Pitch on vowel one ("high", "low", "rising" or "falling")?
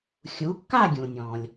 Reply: rising